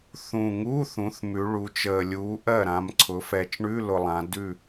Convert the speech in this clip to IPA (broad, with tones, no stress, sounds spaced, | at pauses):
θ ũ˨˩ ŋ uː˧˥˧ θ ũ˩˧ θ m ʉ˩˧ ɭ u˩˧ t͡ʃ əː˨˩ lʲ uː˨˥ ʔ ɜ˥˩ ɾ ã˩˧ m ǀʰ ʊ˩˧ f ɛ˨˩ t͡ʃ ɳ ʉ˧˥˧ l ʊ˨˩ lˠ ã˩˧ d ʉ˥˩